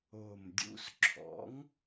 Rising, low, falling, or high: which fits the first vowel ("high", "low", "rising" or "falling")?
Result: low